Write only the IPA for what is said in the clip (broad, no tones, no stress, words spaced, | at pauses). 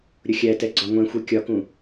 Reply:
ɾʲʊxʲætɛ ɡ͡ǀɒŋʷɛ̃xʷɛ kʲɒkũ